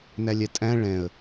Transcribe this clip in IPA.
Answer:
n æ lʲ ɛ tʼ æ̃ ɭ ɛ̃ ə̯

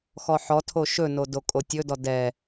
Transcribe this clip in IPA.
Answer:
x ɔ ħ ɔ tʰ o ʃ ɵ n o d o kʼ o tʲ ɵ d ɔ d ɛ

